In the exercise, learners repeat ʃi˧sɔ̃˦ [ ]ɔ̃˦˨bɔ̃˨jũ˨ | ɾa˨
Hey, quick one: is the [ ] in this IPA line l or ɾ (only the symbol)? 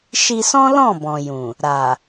l